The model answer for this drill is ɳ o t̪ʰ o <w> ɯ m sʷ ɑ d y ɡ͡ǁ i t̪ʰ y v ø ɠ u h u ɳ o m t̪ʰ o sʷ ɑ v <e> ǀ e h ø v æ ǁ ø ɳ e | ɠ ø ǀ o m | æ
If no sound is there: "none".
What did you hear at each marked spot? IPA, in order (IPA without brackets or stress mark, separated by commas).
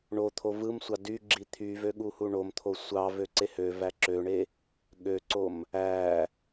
v, ø